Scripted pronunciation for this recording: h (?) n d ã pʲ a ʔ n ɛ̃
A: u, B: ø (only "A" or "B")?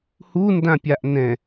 A